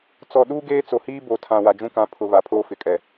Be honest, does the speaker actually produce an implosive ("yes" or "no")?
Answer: yes